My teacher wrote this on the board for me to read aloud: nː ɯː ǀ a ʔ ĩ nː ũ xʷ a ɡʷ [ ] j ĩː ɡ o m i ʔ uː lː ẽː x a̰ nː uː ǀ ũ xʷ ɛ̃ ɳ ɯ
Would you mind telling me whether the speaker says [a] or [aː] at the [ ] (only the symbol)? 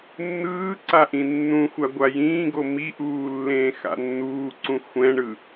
a